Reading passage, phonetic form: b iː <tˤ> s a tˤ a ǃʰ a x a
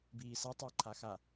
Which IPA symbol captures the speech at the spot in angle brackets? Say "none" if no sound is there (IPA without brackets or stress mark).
none